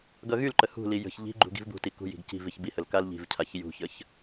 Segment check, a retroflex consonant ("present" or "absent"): absent